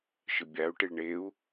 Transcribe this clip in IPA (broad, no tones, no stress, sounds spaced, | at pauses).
ʃ ɨ bʲ a u̯ ʈ i ɭ ɳ e u̯